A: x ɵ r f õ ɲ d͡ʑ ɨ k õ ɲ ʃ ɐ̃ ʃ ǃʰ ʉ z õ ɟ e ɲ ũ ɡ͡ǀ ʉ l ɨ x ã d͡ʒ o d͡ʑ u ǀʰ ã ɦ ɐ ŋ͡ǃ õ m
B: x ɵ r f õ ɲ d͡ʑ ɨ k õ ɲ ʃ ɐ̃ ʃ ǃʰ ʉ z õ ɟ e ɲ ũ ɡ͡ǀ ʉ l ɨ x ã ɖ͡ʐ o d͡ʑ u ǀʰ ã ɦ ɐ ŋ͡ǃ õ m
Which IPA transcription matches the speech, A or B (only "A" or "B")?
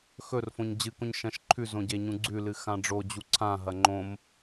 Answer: B